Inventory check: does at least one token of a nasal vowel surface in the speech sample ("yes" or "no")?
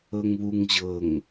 no